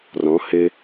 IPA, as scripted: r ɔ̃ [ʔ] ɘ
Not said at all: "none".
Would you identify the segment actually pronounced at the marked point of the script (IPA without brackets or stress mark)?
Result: h